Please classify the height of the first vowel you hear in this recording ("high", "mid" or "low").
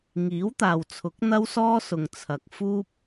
high